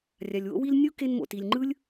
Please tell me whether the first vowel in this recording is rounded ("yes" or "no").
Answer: no